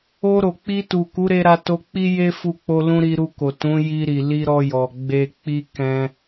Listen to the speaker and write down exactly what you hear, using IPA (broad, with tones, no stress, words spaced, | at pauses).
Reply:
o˧ɾo˨k͡pi˧tu˨ ku˨˦ɾe˧ ɾa˧to˧k͡pi˦ je˦ fu˦k͡po˦lũ˦ ɾi˧ɾu˧ko˨ tũ˨˦ ji˧ɾi˨li˧ ɾɔ˧jɔ˨ ɡ͡be˧k͡pi˦ kɛ̃˧